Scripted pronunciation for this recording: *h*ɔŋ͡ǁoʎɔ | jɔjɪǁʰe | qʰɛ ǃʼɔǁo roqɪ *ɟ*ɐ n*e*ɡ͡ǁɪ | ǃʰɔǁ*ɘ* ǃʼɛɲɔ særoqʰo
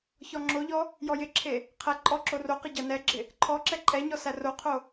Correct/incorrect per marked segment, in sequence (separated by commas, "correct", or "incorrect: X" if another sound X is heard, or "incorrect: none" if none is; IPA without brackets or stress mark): incorrect: ç, correct, incorrect: ɛ, incorrect: ɛ